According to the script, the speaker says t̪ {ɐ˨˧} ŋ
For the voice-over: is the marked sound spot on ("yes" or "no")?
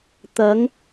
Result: yes